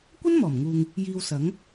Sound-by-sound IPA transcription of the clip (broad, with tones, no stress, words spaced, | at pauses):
kʷɐ˥nmɔː˨˩mŋuː˨ŋ | jiː˧wsɐ˨˥ŋ